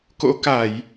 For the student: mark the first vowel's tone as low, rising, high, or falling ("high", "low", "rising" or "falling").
rising